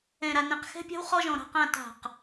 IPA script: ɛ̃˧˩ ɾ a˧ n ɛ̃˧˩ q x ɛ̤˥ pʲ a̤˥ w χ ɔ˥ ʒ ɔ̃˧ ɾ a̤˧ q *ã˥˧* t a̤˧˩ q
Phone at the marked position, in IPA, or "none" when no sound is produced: ã˥˧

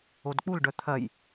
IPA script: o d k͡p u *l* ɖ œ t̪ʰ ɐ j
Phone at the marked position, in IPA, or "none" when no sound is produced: l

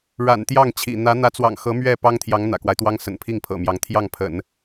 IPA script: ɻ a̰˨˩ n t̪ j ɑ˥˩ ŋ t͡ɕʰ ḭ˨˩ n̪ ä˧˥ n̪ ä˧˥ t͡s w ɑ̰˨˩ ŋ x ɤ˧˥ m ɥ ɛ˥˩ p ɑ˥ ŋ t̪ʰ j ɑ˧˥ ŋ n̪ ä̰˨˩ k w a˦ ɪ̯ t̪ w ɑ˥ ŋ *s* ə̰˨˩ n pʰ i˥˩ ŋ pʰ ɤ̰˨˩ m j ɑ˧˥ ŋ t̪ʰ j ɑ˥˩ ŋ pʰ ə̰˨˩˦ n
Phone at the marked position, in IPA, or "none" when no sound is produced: s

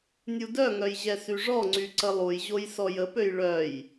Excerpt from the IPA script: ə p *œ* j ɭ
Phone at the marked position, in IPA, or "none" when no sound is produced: ø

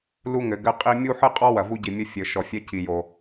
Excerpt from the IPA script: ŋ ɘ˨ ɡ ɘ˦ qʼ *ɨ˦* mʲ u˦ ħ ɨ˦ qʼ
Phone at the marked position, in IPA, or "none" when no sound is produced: i˦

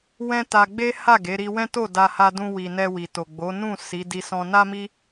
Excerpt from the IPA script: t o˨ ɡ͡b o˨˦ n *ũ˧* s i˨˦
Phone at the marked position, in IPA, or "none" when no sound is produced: ũ˦˨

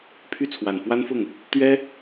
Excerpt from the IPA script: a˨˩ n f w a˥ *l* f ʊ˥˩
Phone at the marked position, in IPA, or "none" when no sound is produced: n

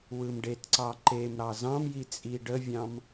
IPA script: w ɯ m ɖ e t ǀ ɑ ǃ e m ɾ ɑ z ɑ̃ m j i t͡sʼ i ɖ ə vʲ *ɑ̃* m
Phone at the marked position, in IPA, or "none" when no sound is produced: ɑ̃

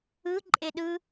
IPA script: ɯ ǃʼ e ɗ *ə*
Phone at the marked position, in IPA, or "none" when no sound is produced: ɯ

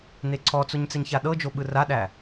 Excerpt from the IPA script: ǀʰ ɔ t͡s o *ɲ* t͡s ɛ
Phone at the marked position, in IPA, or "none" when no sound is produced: ɲ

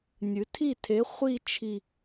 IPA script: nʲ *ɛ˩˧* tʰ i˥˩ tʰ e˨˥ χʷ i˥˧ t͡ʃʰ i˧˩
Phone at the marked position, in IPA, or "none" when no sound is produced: ɨ˩˧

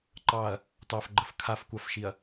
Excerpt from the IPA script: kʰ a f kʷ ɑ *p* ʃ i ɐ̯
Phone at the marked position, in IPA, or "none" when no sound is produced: f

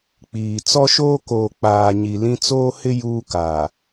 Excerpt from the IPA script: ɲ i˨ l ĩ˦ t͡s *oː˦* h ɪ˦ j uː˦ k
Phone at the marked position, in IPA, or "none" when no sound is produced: oː˦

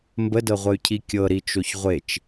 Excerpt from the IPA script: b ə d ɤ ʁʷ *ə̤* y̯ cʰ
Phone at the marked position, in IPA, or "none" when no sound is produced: ə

